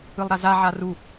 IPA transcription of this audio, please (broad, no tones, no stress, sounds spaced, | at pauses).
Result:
ɯ lˠ ɾ a z a ʕ a r u